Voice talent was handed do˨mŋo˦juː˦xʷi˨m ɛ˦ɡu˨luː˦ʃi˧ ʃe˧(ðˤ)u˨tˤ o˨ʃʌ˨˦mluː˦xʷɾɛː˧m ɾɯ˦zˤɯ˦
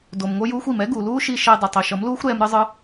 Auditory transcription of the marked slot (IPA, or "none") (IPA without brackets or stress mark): dˤ